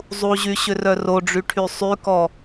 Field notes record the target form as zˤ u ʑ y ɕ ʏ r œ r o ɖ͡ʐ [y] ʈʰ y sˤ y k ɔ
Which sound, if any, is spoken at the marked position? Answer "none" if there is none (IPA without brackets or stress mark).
y